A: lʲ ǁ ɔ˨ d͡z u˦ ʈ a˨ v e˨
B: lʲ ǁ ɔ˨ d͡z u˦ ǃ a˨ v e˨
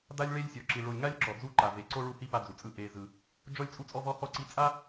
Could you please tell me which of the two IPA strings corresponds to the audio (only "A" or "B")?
B